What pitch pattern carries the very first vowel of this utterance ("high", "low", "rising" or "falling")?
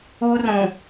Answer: high